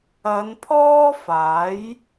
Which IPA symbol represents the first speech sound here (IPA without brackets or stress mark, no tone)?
ɐ